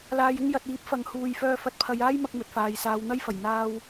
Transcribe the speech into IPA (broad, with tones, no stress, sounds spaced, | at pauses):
l aː˧ j ɪ˥ ŋ j ɐ˨ t̚ iː˨˥ p̚ f ɐ˨˧ ŋ h uː˧ j f œː˧ f ɐ˨˥ t̚ pʰ ɐ˨˧ j aː˥ j m ɐ˥ k̚ m ɵ˨˥ t̚ f aː˨ j s aː˨˧ w n̪ ɐ˥ j f ɐ˨˩ j n̪ aː˥ w